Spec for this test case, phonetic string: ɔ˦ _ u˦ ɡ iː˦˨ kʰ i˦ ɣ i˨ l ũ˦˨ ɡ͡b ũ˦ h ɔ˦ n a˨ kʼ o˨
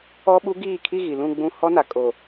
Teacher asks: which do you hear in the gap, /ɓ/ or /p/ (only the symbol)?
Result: ɓ